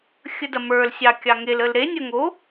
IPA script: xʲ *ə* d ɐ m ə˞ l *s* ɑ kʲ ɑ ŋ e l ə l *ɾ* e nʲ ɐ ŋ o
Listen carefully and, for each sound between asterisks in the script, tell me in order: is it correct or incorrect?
correct, incorrect, correct

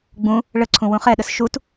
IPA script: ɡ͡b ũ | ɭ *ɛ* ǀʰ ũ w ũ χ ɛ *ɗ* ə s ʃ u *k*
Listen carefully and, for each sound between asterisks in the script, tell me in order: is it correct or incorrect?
incorrect, correct, incorrect

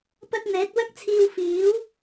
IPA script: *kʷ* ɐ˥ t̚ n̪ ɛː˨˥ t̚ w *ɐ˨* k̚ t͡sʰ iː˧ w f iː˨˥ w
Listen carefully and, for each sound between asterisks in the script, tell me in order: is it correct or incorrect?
incorrect, incorrect

